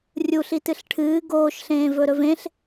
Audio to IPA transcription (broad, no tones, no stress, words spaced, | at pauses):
rʲuɬ itɨɬʈʰɨː ɡoːʃɬẽːvɵɾɵv ẽɬ